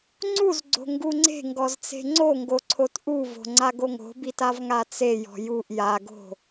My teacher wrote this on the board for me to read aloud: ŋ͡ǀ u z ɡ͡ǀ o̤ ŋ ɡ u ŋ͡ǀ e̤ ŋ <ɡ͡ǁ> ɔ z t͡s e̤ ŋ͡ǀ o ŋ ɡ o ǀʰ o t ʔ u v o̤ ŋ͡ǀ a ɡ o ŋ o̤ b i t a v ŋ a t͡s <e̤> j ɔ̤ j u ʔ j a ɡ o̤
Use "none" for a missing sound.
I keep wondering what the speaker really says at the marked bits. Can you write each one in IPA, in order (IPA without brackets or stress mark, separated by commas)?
ɡ, e